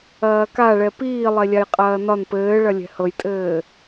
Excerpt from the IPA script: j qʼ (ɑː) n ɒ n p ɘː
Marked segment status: incorrect: ɐː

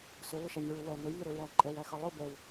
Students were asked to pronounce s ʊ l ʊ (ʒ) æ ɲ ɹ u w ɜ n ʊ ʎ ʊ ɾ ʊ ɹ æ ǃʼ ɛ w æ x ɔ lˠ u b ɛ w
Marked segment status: incorrect: ʃ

